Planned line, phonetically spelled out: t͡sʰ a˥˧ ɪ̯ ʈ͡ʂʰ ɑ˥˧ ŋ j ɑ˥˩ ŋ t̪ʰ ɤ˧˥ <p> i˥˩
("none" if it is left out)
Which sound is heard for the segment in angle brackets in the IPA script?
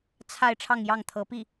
p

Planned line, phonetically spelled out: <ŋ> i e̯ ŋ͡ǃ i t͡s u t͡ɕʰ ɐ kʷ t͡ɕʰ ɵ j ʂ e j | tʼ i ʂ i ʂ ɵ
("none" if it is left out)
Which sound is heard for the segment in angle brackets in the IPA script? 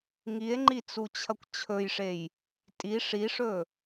ŋ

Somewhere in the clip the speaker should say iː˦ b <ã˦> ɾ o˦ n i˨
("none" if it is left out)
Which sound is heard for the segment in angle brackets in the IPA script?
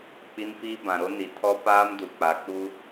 ã˨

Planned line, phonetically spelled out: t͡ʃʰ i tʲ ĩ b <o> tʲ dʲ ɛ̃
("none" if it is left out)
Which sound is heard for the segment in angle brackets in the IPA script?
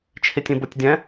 o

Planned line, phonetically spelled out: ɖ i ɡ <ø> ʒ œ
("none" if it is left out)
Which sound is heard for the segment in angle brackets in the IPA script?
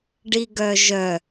œ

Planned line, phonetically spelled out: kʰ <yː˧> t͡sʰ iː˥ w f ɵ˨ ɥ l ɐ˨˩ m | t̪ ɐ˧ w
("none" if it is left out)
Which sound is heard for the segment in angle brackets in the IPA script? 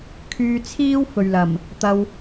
yː˧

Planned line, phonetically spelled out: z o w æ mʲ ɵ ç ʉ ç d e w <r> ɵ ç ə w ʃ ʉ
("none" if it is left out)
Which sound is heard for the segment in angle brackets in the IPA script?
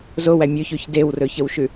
r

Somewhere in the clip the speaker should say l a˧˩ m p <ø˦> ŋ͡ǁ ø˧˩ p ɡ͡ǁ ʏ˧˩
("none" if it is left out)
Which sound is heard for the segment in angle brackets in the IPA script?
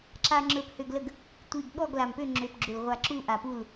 ø˥˨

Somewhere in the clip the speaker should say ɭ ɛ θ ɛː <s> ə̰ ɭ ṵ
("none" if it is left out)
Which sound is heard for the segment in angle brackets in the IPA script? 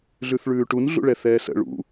s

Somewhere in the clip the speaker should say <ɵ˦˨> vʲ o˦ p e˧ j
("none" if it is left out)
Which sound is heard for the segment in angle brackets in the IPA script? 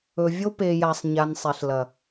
ɵ˨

